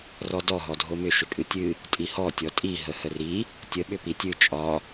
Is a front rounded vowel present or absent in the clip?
present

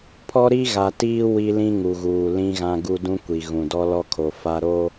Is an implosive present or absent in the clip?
absent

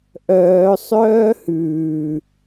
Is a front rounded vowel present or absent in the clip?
present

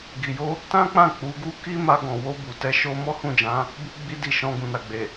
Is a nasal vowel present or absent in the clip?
present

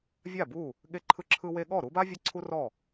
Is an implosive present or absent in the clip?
present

